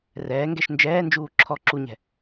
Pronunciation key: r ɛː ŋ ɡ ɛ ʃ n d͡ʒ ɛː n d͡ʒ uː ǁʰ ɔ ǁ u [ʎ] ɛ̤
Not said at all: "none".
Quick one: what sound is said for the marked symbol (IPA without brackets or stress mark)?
ɲ